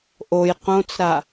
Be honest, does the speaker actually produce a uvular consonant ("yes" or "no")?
yes